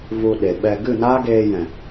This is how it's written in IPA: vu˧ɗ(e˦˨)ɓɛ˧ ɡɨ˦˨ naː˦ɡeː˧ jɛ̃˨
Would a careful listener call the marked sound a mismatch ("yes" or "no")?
yes